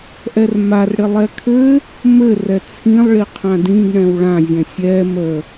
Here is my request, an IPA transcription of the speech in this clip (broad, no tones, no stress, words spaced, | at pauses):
ʔɛrmarɽɪ lˠɛkʰɘ | mɘrɛ t͡sʰĩlˠɭiqʰã dĩɡ ɳɛ̃wɭãzʲɛ̃ sʲɛ mə